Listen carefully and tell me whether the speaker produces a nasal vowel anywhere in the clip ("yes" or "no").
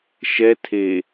no